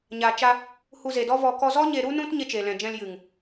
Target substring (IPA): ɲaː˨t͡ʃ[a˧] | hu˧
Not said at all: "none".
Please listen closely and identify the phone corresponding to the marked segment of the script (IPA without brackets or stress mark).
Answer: a˧